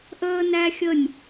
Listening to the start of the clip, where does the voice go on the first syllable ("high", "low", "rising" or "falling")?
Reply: high